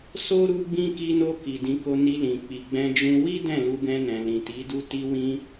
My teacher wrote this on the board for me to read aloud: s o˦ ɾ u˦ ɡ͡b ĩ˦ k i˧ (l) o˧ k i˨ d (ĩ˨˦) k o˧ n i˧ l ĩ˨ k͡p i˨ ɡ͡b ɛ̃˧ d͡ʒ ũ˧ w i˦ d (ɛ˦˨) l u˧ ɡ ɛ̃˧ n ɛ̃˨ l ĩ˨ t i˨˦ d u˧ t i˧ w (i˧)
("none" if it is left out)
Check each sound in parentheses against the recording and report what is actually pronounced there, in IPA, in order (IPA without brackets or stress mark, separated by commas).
n, ĩ˨˦, ɛ̃˦˨, ĩ˧